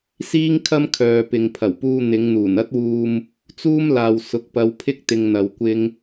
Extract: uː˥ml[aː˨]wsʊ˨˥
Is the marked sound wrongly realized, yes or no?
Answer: no